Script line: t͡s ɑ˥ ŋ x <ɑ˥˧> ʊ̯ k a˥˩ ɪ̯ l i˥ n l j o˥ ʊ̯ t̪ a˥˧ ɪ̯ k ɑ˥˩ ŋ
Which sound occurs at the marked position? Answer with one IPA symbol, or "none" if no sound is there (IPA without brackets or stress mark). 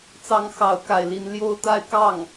ɑ˥˧